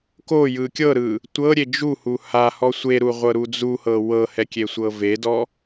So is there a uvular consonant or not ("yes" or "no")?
yes